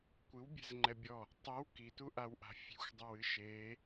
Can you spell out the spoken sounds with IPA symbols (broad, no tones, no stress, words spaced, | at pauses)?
kʷɨwbʲɛ̤z ŋ͡ǃɛbʲɔ | tˤiw kituʔawʔa̤ fʲe̤xʷdˤɘw ɨʃe